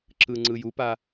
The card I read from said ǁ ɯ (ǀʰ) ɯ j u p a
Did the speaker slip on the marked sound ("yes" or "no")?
yes